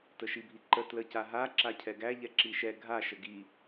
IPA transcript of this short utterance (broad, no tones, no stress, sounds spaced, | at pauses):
t ə ʃ i bʱ i ǃ ə t l ə c a ɦ a ǁ a cʰ ɛ ɡ æ ʎ ɛ ǁ i ʃ ɛ ɡʱ a ʃ ə ɡ i